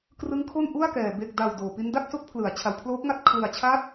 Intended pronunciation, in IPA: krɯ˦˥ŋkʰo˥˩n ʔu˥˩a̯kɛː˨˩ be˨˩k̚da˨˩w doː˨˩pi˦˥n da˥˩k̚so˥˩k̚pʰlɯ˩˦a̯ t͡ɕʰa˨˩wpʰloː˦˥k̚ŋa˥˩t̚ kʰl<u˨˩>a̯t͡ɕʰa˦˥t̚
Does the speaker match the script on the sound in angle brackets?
no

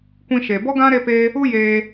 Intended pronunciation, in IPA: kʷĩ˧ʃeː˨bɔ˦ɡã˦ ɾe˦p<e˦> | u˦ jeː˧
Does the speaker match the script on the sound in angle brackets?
yes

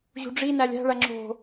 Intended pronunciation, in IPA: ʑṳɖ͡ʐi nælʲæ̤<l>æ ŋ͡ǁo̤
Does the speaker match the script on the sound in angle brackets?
no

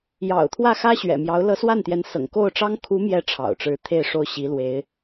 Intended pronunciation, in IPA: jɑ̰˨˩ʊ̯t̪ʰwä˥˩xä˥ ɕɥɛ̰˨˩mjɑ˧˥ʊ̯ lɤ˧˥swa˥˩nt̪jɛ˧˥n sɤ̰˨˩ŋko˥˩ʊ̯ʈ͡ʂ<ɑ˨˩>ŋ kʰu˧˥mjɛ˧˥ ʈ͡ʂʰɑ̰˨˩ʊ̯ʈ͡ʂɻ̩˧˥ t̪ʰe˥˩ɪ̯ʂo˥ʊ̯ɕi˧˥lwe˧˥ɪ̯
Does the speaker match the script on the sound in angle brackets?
no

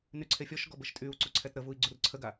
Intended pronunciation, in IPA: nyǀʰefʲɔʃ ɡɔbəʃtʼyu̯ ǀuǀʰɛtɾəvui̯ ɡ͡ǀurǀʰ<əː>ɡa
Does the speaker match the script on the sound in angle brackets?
no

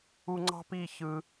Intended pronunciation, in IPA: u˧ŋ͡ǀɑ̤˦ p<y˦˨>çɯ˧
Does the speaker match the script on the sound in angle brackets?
no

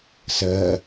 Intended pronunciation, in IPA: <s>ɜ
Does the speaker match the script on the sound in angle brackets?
yes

